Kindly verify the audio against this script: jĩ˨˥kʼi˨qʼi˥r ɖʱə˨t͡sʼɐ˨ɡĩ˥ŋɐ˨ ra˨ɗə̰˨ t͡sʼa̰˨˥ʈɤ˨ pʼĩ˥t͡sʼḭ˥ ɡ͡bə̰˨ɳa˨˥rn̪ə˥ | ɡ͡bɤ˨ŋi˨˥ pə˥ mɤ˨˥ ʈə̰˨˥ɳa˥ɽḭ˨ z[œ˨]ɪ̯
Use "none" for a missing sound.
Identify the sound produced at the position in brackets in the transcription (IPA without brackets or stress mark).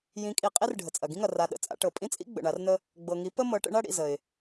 ə˨